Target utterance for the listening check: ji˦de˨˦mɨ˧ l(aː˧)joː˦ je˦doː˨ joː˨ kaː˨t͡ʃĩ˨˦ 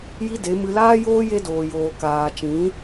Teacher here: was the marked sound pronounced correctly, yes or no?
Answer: no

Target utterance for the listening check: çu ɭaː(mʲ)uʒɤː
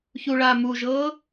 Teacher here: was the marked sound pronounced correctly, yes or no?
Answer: no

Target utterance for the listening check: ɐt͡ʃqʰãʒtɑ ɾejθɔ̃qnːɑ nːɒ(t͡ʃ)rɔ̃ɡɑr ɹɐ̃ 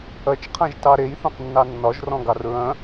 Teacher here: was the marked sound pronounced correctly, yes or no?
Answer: no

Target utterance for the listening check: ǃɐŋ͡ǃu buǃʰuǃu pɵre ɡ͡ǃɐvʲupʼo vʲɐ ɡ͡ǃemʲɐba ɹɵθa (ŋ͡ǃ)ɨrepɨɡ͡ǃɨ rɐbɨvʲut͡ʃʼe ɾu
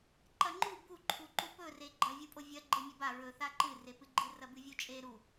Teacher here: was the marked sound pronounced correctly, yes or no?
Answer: no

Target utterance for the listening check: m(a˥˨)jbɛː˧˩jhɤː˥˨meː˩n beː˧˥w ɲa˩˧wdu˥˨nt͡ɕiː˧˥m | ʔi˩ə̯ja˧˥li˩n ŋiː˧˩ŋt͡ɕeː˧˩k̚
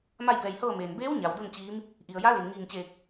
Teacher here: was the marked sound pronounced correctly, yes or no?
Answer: yes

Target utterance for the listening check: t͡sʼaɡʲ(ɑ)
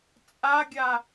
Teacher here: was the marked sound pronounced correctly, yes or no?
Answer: no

